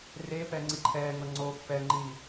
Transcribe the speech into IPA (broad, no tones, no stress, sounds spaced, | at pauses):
r e p ɛ ŋ͡ǀ i ǃʰ ɛː ŋ ɤ ŋ͡ǀ o pː ɛ ŋ͡ǃ iː